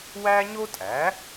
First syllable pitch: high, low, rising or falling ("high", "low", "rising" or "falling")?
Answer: high